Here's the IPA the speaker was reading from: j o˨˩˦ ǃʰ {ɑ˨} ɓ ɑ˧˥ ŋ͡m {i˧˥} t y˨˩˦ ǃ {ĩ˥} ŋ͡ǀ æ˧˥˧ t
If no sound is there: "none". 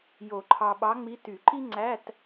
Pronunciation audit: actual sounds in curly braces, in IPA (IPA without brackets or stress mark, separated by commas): ɑ˨, i˧˥, i˥